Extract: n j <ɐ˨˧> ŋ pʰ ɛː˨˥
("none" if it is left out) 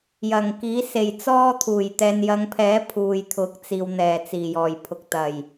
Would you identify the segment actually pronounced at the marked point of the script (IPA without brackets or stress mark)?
ɐ˨˧